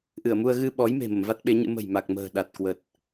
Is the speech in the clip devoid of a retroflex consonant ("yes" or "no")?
yes